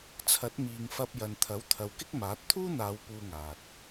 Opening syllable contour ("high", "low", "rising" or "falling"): rising